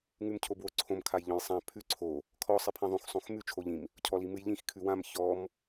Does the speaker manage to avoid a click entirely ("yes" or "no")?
no